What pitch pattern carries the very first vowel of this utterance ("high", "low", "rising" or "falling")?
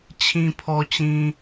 low